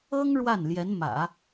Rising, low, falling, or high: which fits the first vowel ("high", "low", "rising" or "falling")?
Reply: high